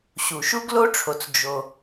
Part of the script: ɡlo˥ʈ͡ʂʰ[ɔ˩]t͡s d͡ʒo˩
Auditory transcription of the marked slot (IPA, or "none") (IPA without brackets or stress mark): o˩